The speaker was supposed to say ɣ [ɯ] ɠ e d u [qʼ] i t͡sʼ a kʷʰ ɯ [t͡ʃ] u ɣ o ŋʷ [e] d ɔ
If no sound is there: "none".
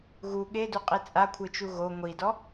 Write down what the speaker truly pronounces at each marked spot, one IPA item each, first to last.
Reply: u, qʼ, t͡ʃ, i

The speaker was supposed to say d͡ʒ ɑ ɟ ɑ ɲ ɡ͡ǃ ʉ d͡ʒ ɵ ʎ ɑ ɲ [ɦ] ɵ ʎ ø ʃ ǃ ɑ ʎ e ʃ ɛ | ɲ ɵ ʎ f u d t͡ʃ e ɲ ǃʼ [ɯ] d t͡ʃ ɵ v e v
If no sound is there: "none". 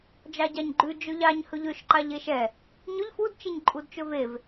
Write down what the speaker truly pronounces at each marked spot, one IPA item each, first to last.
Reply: h, u

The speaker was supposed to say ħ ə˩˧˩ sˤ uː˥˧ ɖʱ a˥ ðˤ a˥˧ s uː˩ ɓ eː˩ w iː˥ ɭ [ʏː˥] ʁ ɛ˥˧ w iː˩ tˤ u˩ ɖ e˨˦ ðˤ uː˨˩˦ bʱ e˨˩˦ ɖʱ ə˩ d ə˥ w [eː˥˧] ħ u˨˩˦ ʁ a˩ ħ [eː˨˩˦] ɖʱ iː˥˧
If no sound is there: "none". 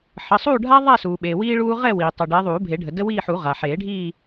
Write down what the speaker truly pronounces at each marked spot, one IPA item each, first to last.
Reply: uː˥, iː˥˧, eː˨˩˦

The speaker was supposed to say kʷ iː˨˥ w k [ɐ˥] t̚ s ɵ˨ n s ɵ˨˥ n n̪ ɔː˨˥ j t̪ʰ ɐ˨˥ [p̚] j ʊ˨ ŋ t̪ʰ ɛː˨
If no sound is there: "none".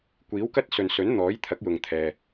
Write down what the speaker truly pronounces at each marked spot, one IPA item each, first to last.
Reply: ɐ˥, k̚

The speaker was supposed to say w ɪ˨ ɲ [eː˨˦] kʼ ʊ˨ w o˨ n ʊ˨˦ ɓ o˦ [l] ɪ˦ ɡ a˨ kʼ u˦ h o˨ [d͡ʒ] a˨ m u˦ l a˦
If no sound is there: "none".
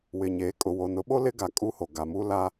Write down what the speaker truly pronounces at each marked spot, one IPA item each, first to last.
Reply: eː˨˦, l, ɡ

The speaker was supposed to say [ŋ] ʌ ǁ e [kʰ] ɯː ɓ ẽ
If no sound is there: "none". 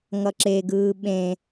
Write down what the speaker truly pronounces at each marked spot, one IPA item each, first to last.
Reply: ŋ, ɡ

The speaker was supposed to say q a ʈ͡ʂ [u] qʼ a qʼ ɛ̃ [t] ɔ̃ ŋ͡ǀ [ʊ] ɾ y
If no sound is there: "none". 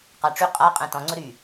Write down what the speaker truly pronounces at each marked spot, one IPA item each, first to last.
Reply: y, t, ʊ

